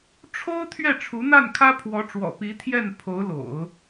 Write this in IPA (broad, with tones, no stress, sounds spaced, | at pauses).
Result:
ʈ͡ʂʰ o˥ ʊ̯ t̪ʰ ɥ ɛ˥˩ ʈ͡ʂʰ u˧˥ n̪ a˥˩ n kʰ ä˥ pʰ w ɔ˧˥ ʈ͡ʂ w ɔ̰˨˩ p i˧˥ t̪ʰ j ɛ˥˩ n pʰ o˧˥ ʊ̯ l o̰˨˩˦ ʊ̯